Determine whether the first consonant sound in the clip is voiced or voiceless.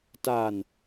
voiceless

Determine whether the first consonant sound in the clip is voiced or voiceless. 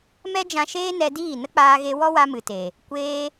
voiced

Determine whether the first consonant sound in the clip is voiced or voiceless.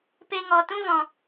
voiceless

